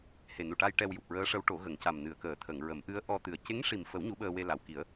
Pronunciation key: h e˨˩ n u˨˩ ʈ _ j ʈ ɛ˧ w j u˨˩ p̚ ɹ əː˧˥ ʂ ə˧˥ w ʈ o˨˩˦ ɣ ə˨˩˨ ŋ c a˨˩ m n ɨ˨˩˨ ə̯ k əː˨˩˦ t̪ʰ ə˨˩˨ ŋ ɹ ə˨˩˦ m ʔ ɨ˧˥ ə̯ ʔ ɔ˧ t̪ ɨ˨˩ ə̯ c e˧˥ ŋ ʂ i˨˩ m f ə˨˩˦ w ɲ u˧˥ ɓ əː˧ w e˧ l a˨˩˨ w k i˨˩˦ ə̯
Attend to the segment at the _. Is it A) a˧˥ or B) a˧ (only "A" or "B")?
B